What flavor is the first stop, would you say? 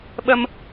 implosive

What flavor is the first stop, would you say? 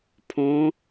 aspirated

